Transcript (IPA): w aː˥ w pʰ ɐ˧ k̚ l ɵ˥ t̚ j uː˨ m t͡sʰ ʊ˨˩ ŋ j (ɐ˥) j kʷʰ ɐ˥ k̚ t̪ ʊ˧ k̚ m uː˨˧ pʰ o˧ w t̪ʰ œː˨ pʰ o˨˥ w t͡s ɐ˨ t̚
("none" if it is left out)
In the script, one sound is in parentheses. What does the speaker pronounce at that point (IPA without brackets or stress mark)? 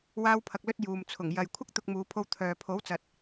ɐ˨